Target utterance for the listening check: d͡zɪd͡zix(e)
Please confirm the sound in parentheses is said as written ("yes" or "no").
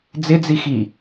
no